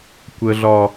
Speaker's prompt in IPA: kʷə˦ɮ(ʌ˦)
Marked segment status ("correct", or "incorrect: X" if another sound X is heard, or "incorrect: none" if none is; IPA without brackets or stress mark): incorrect: ɒ˦